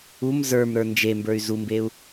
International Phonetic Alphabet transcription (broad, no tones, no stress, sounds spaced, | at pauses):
u m z ə˞ m ɾ ə˞ n d͡ʒ e m b ə˞ y̯ z u m b e u̯